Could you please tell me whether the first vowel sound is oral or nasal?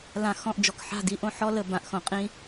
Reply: nasal